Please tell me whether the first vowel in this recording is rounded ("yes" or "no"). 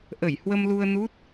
no